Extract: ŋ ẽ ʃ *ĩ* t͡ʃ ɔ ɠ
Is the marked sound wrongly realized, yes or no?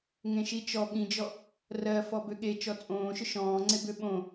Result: yes